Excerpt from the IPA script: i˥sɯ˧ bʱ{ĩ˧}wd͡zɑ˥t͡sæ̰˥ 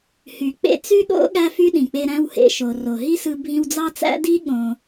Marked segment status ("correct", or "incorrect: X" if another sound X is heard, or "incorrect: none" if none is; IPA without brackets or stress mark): correct